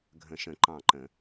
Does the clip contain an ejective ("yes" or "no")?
no